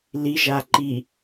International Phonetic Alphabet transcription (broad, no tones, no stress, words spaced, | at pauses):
liʒa ǃi